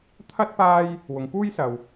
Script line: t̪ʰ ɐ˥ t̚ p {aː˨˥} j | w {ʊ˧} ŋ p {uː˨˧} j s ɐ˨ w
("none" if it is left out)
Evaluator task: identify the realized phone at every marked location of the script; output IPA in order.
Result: aː˥, ʊ˨˧, uː˥

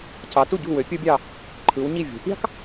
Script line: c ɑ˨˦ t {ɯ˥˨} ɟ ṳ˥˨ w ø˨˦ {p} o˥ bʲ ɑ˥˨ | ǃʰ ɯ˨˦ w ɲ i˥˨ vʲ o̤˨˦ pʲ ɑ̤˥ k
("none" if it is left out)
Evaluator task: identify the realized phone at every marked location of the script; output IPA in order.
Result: u˥˨, pʲ

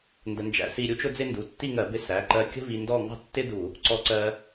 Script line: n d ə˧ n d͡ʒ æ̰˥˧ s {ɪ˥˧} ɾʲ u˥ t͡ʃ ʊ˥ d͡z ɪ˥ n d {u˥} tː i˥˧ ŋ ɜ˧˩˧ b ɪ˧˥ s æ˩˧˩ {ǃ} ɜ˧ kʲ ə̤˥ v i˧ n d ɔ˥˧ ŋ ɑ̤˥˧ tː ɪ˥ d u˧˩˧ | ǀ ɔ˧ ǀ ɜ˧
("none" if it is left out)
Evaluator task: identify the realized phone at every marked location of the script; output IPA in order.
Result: i˥˧, u˩˧˩, ǃ

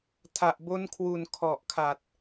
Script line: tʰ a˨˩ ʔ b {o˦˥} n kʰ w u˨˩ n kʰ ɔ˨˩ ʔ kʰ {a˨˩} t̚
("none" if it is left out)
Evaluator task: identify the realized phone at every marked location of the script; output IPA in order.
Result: o˦˥, a˨˩

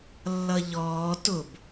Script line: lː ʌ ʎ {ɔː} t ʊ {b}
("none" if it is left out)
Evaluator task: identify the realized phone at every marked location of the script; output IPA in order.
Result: ɔː, b

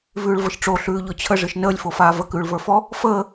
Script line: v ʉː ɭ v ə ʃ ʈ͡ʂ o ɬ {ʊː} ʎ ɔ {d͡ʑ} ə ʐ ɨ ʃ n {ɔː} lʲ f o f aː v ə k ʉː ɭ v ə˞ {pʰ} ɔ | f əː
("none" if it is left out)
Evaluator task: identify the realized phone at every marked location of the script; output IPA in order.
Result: ʉː, t͡ɕʰ, əː, f

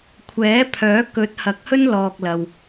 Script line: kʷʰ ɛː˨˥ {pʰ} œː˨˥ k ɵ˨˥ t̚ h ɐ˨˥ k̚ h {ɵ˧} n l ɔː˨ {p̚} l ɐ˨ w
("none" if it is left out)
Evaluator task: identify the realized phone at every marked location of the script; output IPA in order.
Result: pʰ, ɵ˥, k̚

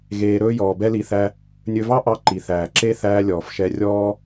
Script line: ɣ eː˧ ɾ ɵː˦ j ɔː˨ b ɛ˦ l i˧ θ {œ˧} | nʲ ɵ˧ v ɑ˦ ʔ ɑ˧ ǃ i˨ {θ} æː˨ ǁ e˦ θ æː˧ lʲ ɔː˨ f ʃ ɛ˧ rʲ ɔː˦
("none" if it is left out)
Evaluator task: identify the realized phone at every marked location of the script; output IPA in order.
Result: æ˧, θ

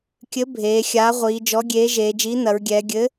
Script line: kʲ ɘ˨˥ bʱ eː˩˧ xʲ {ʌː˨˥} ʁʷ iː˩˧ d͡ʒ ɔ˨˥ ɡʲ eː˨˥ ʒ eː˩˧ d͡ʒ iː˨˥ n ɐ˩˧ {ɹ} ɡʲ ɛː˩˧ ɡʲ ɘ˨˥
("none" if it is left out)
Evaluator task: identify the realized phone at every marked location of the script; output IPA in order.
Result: aː˨˥, ɹ

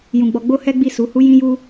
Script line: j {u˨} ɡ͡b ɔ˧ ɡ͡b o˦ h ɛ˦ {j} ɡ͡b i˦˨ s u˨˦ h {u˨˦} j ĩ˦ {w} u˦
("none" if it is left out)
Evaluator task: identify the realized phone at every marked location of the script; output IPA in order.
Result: ũ˨, none, u˦, j

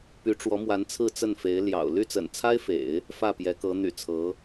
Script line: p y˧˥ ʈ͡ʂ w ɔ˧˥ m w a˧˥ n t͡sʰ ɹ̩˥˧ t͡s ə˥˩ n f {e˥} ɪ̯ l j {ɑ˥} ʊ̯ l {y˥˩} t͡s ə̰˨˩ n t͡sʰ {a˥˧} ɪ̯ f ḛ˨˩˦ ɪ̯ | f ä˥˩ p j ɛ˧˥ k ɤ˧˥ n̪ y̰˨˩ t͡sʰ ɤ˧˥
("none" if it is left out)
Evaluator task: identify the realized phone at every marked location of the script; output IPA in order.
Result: e˧˥, ɑ̰˨˩, y˥˩, a˥

